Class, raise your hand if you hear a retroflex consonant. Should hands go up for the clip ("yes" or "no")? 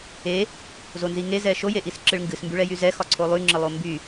yes